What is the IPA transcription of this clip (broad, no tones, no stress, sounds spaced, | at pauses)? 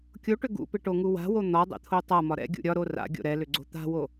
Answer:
kʲ o ʈ ʏ ɡ ṵ p ɪ ʈ o ŋ u w a̤ w o n̪ ɒ dˤ ɛ̰ t̪ʰ o tˤ a m ɒ ɾ ɛ̰ ɡʲ ṵ ɾʲ ɒ ɾ o r a̰ ɡʲ o̰ ɾ ɛ l ʏ ɡ͡ǀ o̤ t̪ a̤ w o